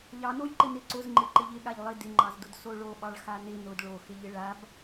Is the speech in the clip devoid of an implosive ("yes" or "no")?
no